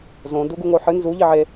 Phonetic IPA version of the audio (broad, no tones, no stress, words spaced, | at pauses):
zõ duɡuŋoħɨ nzu ʎiʕe